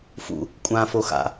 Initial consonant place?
labial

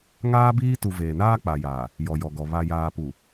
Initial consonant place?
velar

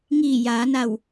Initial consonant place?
velar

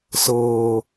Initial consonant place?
alveolar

